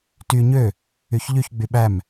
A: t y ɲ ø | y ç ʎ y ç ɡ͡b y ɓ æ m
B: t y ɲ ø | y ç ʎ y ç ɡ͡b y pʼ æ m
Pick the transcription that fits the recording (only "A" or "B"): A